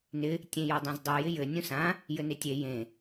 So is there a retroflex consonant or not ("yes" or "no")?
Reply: no